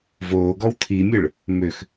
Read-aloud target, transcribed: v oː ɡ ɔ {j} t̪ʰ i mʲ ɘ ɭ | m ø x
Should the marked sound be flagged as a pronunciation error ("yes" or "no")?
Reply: yes